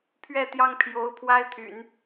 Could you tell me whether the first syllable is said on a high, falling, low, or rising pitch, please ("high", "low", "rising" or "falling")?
falling